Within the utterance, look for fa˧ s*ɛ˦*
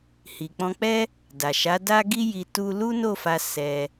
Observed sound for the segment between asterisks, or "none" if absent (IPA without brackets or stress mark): ɛ˧